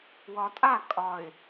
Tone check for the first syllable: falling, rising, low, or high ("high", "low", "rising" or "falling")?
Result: low